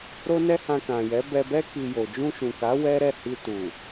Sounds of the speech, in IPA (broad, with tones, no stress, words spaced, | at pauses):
ɾo˦nɛ˦ hã˧kã˨jɛ˨˦ bɛ˧bɛ˦ ki˧jo˨ d͡ʒũ˧ʃũ˨ka˨˦ wɛ˦ɾɛ˦˨ hi˧tu˨